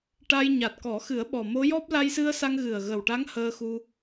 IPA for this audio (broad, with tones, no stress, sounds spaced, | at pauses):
ʈ a˧ j ɲ a˨˩ t̚ k ɔ˨˩˦ x ɨ˨˩˦ ə̯ ɓ ɔ˨˩ m o˧˥ j ɔ˦˥ p̚ l a˧ j s ɨ˧ ə̯ s a˧ ŋ ɣ ɨ˨˩ ə̯ ɣ ə˨˩ w ʈ a˧˥ ŋ h əː˧ x u˧